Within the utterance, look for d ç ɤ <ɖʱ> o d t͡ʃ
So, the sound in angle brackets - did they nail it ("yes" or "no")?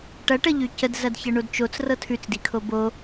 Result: no